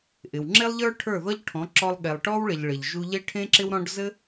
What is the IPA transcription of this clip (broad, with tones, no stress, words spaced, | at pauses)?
ʔɪ˨wŋ͡ǁe˦lˠʎə˞˦ ʈʰə˞˦˨ðɔ˦ʎʈʰɔ̃˨˦ ǁɔ˧lˠɠe˨lˠʈɔ˦wɭɪ˨ʎ ɭɪ˨ʎ ʒu˧ʎe˦ʈʰẽ˦ ǁɪ˦wɾɔ̃˦ɖ zɘ˦